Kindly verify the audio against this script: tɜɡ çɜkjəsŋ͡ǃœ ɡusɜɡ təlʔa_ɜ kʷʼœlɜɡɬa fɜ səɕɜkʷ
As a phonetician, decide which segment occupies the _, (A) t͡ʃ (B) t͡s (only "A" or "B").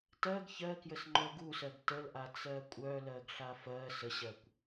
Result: B